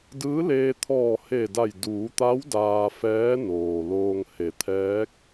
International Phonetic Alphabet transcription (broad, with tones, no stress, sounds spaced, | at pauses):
d ɯː˧˥ l eː˧ t̪ʰ ɔː˧˩ h e˧˩ d a˧˩ j d uː˩˧ t̪ a˧˥ w d aː˧ f ɛː˧˥ n oː˩ l oː˧ ŋ h e˩˧ t̪ʰ ɛː˧˥ k̚